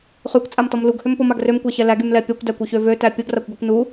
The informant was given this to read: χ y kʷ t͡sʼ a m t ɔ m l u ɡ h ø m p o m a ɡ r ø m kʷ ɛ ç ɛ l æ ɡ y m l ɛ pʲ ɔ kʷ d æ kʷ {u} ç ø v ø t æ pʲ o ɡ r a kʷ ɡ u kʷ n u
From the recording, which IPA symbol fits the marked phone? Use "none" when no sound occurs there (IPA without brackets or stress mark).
y